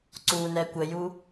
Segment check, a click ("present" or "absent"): present